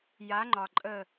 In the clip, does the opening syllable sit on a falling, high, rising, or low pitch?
rising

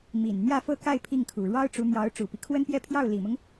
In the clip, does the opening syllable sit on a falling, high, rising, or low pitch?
low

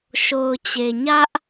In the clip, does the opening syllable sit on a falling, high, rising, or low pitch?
low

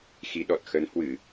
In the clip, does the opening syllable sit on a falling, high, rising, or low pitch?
rising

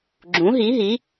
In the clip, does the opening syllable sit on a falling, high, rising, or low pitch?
rising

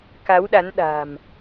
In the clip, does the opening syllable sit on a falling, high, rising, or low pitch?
rising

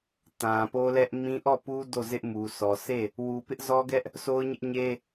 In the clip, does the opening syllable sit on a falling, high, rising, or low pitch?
low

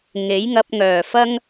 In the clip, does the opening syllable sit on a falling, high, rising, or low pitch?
rising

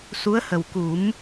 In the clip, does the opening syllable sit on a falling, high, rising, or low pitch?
rising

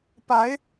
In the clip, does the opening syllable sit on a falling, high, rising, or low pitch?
rising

